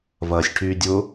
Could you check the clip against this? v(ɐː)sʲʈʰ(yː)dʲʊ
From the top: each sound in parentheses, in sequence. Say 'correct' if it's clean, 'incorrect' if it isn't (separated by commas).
correct, correct